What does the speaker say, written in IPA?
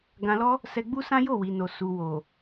ɡ ã˨ l ɔ˧ | s ɛ˧ ɡ͡b u˦ s ã˦ j o˦˨ w i˨ n o˨ s u˨ w o˨

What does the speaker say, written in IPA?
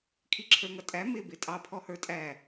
kʰ i ǁʰ ə˞ ŋ ʌ tʼ æ m ɪ b ɪ tʼ ɑ pʰ ɔ h ə˞ tʼ æ

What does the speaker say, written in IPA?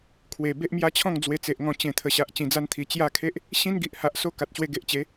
kʰ w e˨˩ b e˦ ʔ m j a˦ t͡ɕʰ ɔ̃˥˧ ŋ d͡z w e˧ t͡s e˨ ʔ ŋ ɔ̃˧ t͡ɕ ẽ˨˩ t̪ʰ ə˨˩ ɕ a˨ ʔ t͡ɕ ĩ˨˩ d͡z a˧ n t̪ʰ i˨˩ t͡ɕ j a˥˧ kʰ e˦ ʔ | ɕ ĩ˦ n ɡ i˨ ʔ h a˨ ʔ s o˧ k a˨ t̚ ɕ w e˧ ɡ e˨ ʔ t͡ɕ e˨˦

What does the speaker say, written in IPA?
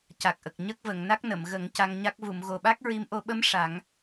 c a˨˩ k̚ ʔ ə˨˩ k̚ ɲ ə˦˥ k̚ v ə˨˩˨ ŋ n a˦˥ k̚ n ə˨˩˨ m ɣ ə˨˩˦ ŋ c a˧ ŋ ɲ a˦˥ k̚ v u˨˩˨ m ɣ o˨˩ ɓ a˦˥ k̚ ɹ i˧˥ m ʔ o˨˩˦ ɓ ə˧˥ m ʂ a˨˩˦ ŋ

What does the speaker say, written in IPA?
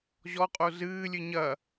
ʑ ɔ qʼ o z ɨː lʲ ɨ ɲ ɐ

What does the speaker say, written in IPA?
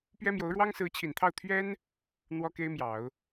p ɥ ɛ˥ m j o˧˥ ʊ̯ ɻ w ɑ˥ ŋ s ɹ̩˧˥ t͡ɕʰ i˨˩ n t̪ʰ ɑ˥˩ ʊ̯ t̪ʰ ɥ ɛ˥ n | n̪ w ɔ˥ k e˥ ɪ̯ m j ɑ˨˩˦ ʊ̯

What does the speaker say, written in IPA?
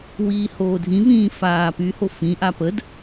w iː h oː dʱ ĩ v ĩː f aː p y h o f ĩ ʔ a p ə d

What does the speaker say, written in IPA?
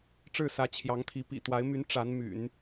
ʈ͡ʂ ɻ̩˥˩ s ä˧˥ t͡ɕʰ j ɑ˧˥ ŋ t̪ʰ i˧˥ p ḭ˨˩ t̪ w a˧˥ ɪ̯ m y˧˥ n ʈ͡ʂ a˧˥ n m y̰˨˩˦ n

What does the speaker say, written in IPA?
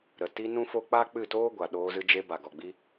ɾ ə˨ t i˧ n ũ˦ f o˦ k͡p aː˦ k͡p ɨ˦˨ t oː˦ ɡʷ a˨ ɗ oː˧ z ɨ˧ d͡ʒ e˧ b a˨ ɡ ɔ˨ ɡ͡b i˧

